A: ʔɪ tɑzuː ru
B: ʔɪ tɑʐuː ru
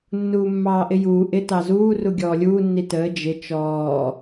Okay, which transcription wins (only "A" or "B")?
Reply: A